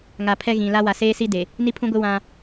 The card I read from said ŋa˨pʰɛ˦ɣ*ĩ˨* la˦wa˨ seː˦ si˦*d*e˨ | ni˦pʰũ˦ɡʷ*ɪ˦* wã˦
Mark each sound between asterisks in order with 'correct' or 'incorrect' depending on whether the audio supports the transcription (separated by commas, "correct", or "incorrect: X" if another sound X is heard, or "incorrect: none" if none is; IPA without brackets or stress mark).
correct, correct, correct